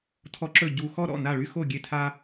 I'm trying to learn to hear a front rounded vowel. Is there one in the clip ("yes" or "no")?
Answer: yes